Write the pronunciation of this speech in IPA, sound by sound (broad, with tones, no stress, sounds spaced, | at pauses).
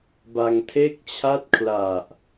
b a˧ ŋ tʰ e˥˩ k̚ t͡ɕʰ a˥˩ t̚ kʰ l a˨˩ ʔ